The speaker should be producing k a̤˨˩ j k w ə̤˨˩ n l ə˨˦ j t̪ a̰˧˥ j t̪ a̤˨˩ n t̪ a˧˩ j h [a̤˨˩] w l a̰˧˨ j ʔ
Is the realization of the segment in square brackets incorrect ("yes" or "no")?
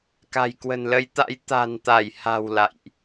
no